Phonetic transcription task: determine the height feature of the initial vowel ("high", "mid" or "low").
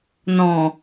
mid